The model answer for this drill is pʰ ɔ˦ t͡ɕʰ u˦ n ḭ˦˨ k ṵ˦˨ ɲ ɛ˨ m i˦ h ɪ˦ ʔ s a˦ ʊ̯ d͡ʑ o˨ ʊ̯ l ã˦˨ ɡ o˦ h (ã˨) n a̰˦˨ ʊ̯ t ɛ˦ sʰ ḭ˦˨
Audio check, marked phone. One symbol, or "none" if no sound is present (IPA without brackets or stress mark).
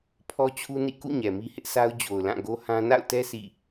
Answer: ã˦